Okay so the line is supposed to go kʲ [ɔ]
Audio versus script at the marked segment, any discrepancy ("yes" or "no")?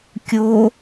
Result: yes